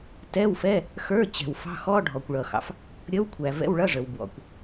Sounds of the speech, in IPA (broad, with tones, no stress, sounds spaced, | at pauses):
t ɛ˧˥˧ w f ɛ˧˥˧ | x ə˞˧˥˧ t͡ɕ ɛ̤˩ w f ɑ̤˧˥˧ x ɔ˧˥˧ ɖʱ ɔ˩ kʷ ɭ ʌ˩ x ɑ̰˩ f | ɾʲ ʌ˧˥˧ w kʷʰ æ˩ v ɛ̰˧˥˧ w ɭ ʌ˧˥˧ ʐ ə˩ w b w ɔ̰˩ kʷ